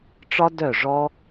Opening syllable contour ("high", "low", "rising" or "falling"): high